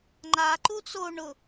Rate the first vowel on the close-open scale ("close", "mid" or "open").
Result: open